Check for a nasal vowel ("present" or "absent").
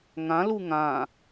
present